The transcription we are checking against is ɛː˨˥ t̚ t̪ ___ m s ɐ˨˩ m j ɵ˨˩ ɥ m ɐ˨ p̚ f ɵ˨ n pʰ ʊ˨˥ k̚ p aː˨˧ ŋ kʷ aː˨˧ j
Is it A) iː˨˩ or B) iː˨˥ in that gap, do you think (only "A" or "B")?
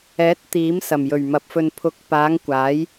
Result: B